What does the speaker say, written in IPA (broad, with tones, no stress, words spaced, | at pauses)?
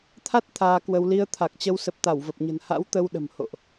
t̪ʰa˦˥t̚ t̪ʰaː˧kwə˧w li˧ə̯t̪ʰa˨˩k̚t͡ɕə˧w sə˨˩p̚t̪a˧˩wvə˨˩p̚ɲə̤˨˩n ha̰˧˥wt̪ə˧wɗə̤˨˩mho̰˧˨ʔ